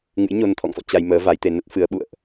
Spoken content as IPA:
ŋɨ̰˧˥jɲo˧n t̪ʰɔ̰˧˨ŋfɔ̰˧˨ t͡ɕa˧jməː˨˦ va˨˦jt̪e˧ nə˦˥t̚fɨ˨˦ə̯ɓṵ˧˨ə̯ʔ

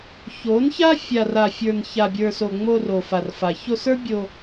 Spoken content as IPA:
ço˨˦nça˦ fʲa˨ra˨fʲə˞˨n ça˨bʲə˞˨so˨ ŋ͡mo˧ro˨ fa˨rfa˨ço˧sə˞˦ bʲo˧

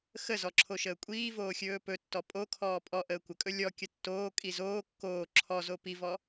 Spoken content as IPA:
xəzɔ ǁʰoʃəːkʷʼiːvoː xʲɵːpɵtːɔ pʼokʰɔː pʼɔ ʔəːkʷəkʼɵ lʲɔ kʲətːoːkʼi zoː kːoː ǁʰɔzo pivɔ

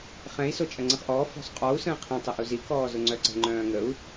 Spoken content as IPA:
χɛ̃i̯ sot͡ʃʼɐŋ͡ǀə̃χʔɔː fɔ̤sˤqʼɔu̯ sə̃ːqʰĩ tˤɪʔuzi kɔːzʊŋ͡ǀœǀə̤ ŋ͡ǃœ̃ːŋəu̯

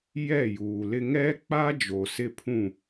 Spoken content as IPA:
jɛ˦˨juː˨lɪ˦ ŋɛ˦k͡pa˦ d͡ʒo˨sɪ˦pʰũ˦˨

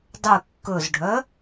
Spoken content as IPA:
dˤʉ kːɵzɖʱœ

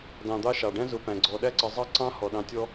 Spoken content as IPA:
dɑ̃ː˨d̪ɑ˦ʃɑ˩ɖæ̃˥ zʊ˨pæ̃˩ɡ͡ǀɔ˨ ɗæ˥ǀə˨zˤɑ˥ǀɑ̃˥ hɔ˩ɗɑ̃˨tʲɔ˦

